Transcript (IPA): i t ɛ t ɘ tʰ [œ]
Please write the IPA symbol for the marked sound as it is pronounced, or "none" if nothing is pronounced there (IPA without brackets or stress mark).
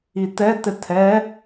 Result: ɛ